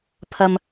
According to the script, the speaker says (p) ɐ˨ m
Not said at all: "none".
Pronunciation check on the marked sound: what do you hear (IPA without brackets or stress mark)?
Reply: pʰ